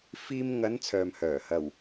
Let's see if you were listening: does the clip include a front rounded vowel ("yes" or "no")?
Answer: yes